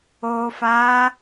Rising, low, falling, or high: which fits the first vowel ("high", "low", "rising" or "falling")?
low